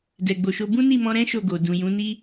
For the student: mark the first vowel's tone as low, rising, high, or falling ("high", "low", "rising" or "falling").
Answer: low